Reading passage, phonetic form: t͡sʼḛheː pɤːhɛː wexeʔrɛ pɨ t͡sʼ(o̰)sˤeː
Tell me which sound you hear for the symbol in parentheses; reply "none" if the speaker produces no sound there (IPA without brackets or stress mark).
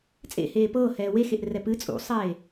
ṵ